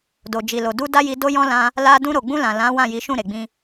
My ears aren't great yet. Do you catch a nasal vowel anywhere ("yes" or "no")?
yes